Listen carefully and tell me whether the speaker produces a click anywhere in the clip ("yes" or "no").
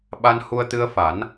no